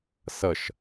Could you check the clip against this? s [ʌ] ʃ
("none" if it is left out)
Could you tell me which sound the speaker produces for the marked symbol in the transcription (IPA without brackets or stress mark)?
ʌ